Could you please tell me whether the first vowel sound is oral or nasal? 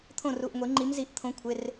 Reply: nasal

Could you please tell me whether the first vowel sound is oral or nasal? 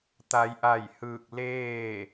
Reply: oral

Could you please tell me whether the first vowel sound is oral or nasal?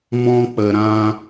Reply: nasal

